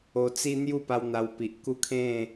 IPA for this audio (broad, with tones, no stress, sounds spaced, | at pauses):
o˧ t͡s i˦ n̪ j u˥˧ p a˧ w n̪ a˧ w p i˨ ʔ k u˦ kʰ ẽ˥˧